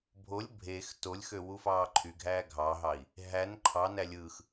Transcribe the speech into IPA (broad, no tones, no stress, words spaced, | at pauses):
bʱolʲ bʱex tolʲxø wufɑːǃʰyɡʱæː ɡʱɑɦɑi̯ | ɦæn ǃʰɑnæ lʲɯːx